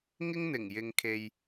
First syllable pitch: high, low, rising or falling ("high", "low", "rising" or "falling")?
high